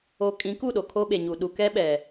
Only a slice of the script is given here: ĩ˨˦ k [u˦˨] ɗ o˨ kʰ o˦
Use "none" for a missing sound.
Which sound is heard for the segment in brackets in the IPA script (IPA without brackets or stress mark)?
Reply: u˦˨